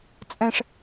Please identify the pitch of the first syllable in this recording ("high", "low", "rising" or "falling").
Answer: high